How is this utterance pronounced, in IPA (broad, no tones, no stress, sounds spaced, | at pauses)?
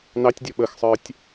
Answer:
n ɑ tʲ dʲ ɔ ɓ ə x sˤ ə˞ tʲ